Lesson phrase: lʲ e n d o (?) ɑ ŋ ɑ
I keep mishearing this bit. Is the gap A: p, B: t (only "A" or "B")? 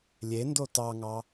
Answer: B